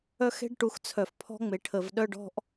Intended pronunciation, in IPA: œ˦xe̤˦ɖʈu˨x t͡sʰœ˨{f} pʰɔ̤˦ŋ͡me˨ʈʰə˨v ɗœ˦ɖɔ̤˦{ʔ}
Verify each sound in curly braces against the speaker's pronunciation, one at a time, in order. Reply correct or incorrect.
correct, correct

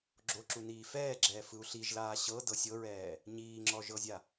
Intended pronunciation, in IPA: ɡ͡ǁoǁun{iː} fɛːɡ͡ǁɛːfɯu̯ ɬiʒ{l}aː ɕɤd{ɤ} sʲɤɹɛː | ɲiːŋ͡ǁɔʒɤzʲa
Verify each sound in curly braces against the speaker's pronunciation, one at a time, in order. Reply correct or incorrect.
correct, correct, correct

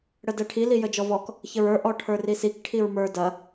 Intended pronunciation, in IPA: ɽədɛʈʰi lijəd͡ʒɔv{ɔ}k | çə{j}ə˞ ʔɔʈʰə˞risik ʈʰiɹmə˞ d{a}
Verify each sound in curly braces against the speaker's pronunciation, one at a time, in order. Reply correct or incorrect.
correct, incorrect: ɹ, incorrect: ɐ

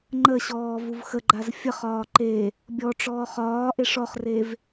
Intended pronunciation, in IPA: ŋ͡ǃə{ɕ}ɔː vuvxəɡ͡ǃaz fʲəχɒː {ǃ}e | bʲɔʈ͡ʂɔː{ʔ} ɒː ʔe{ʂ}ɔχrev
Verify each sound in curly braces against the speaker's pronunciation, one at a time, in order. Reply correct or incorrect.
correct, correct, incorrect: χ, correct

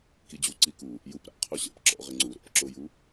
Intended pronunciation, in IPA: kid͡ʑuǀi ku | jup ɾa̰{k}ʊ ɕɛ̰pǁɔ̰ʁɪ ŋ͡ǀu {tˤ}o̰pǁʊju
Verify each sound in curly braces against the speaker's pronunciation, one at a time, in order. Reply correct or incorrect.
incorrect: qʰ, incorrect: ɾ

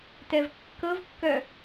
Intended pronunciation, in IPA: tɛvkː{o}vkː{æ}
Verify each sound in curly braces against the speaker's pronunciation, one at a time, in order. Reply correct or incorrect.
incorrect: ɤ, incorrect: œ

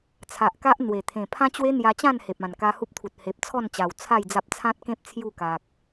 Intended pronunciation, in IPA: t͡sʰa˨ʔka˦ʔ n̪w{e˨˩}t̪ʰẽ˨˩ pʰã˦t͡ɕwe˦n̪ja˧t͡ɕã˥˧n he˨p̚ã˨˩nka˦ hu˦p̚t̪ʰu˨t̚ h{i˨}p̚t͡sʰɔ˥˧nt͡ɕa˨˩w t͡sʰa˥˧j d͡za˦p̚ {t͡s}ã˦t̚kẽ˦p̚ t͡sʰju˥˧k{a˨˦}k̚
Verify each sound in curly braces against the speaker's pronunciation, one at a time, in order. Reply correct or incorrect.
correct, incorrect: e˨, incorrect: t͡sʰ, incorrect: a˨

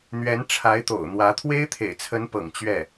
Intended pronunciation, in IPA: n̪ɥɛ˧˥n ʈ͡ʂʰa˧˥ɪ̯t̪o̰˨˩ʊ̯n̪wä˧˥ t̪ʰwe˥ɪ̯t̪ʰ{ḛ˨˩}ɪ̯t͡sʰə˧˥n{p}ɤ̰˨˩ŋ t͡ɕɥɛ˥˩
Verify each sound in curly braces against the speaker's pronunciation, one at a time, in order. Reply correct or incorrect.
correct, correct

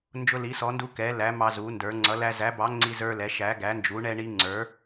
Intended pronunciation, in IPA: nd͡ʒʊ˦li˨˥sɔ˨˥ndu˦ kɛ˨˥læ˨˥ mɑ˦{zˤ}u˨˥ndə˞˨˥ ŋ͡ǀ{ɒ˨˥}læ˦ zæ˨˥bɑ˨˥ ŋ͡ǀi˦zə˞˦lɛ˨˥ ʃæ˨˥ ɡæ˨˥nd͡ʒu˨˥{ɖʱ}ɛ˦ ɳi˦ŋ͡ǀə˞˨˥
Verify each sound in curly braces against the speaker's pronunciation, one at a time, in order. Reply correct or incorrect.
incorrect: z, incorrect: ʌ˨˥, incorrect: ɳ

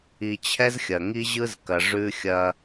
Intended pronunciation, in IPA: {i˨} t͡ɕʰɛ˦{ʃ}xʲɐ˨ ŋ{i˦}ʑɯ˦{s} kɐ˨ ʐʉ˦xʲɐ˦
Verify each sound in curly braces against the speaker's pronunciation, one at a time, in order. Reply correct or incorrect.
correct, incorrect: z, correct, incorrect: z

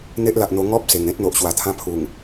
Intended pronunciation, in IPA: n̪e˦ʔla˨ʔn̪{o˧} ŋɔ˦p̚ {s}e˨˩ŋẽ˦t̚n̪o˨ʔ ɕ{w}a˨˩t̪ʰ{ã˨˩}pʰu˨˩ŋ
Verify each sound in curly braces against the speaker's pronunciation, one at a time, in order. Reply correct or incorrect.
correct, correct, correct, incorrect: ã˧

